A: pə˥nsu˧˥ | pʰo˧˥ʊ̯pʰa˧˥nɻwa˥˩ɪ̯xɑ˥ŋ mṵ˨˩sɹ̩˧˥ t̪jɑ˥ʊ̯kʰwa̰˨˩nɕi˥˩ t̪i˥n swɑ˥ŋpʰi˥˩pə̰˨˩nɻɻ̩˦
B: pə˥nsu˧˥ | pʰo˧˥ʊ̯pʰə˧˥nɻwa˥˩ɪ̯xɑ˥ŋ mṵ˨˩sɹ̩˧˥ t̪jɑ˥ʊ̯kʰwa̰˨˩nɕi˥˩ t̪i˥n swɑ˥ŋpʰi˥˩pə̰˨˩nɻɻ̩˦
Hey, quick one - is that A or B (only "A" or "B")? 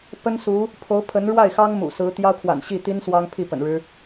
B